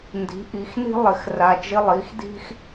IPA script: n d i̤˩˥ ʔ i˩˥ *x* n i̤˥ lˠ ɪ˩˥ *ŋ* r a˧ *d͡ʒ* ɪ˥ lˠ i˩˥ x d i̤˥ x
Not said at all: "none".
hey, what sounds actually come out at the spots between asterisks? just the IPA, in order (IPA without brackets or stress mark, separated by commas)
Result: x, x, d͡ʒ